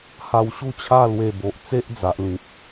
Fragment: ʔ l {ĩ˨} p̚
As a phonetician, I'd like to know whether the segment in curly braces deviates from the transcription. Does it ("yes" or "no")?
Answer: no